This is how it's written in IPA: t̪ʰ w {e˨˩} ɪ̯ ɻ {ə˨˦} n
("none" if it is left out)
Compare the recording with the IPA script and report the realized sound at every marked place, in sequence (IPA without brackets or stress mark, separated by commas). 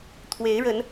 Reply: e˨˦, ə˨˦